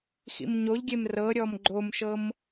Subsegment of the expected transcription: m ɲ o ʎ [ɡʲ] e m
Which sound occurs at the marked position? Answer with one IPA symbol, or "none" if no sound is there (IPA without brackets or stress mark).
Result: ɡʲ